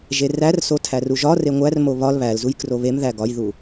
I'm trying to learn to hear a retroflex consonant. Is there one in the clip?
no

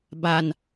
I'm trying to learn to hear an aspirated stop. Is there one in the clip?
no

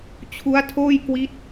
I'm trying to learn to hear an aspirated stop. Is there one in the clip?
yes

